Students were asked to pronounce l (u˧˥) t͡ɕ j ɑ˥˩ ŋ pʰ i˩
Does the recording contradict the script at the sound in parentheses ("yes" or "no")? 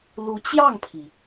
no